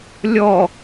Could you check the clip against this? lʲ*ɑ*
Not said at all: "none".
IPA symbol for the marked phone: ɔ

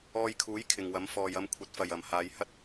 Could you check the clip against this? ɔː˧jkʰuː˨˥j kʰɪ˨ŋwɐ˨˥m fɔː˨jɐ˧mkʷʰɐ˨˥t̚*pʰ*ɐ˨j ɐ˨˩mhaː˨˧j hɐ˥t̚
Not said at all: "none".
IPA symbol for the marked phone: f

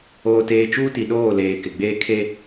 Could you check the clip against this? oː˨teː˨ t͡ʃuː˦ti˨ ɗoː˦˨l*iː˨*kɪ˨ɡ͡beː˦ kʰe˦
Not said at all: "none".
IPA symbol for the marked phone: eː˨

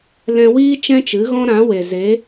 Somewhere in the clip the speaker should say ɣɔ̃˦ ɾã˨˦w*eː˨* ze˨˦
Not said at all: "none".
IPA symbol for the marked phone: e˨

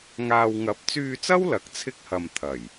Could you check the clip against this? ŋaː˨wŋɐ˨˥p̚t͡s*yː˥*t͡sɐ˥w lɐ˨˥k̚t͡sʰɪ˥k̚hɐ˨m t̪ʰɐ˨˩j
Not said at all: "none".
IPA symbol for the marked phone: yː˧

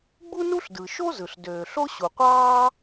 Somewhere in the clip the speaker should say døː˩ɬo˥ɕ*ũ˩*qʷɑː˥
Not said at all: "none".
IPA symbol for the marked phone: u˩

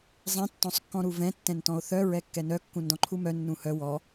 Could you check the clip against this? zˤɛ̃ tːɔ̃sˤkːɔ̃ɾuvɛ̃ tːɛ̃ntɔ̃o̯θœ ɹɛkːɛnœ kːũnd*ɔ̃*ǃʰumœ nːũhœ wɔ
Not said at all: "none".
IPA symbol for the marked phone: ɔ̃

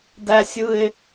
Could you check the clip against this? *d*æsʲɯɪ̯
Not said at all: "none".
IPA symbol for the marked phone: d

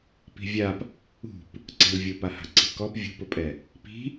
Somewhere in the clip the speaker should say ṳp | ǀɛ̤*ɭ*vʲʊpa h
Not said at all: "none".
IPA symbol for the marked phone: l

